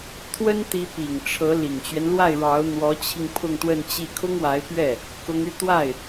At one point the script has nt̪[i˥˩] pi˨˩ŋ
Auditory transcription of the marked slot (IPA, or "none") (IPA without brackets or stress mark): i˧˥